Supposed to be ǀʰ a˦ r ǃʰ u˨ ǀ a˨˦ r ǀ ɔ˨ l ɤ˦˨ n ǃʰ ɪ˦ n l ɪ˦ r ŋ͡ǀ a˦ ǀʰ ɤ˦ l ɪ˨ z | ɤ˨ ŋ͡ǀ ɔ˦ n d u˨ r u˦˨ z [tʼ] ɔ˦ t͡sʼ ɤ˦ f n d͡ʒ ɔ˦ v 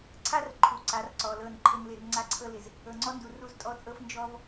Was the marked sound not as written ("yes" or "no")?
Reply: no